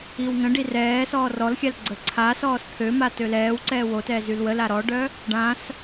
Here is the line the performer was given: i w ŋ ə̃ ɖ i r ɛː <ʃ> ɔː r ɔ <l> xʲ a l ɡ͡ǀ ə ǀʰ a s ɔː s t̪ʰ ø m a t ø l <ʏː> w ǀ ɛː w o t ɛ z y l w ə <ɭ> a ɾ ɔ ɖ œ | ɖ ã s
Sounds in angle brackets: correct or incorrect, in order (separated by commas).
incorrect, correct, incorrect, incorrect